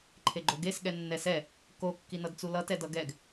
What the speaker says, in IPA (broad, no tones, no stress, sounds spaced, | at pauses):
ǃʰ e ɡ͡ǃ o ɡ e s ɠ ɛ nː ɛ s ɛ | k o kː i n ʌ d t͡s u l ʌ t ɛ d ʌ ɡ ɛ ɡ